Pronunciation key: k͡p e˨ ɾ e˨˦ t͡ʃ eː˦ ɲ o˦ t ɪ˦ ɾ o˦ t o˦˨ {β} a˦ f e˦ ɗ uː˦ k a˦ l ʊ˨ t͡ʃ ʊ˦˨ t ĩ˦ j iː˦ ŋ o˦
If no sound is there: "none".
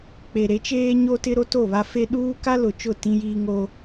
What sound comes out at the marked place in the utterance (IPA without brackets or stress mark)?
β